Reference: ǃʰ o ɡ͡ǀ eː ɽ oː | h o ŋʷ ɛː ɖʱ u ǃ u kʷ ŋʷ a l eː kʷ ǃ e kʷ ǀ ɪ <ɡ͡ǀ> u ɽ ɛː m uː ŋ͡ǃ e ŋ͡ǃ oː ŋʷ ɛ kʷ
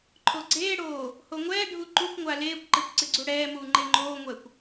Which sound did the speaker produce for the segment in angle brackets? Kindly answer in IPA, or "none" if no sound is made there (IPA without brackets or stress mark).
ɡ͡ǀ